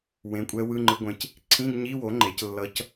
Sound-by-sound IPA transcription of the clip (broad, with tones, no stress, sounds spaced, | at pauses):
w ẽ˩˥ kʷʼ ɛ˧˥ w ɯ˧˥˧ ŋ͡ǃ ɯ˧˥ ɡʷ ẽ˧˥ c | ǀʰ ĩ˧˥˧ ɡ ɲ i˧˥˧ w o˩˥ ŋ͡ǃ e˩˥ c lː ʌ˧˥ c